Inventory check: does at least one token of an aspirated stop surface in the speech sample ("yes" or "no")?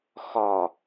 no